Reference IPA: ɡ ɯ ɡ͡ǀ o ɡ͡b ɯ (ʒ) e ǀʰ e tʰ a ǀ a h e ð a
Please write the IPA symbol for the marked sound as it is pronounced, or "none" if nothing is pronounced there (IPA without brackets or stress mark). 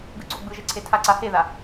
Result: ʒ